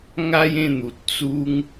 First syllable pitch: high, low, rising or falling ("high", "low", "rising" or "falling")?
high